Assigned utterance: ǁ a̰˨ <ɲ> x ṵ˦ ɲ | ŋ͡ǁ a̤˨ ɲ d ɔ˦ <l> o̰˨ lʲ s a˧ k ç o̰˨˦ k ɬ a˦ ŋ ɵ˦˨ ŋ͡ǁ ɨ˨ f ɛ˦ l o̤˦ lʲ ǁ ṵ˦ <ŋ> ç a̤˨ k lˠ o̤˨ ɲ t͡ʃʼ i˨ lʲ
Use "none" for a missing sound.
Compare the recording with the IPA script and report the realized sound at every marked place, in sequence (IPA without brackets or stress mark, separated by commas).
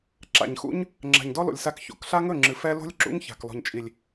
ɲ, l, ŋ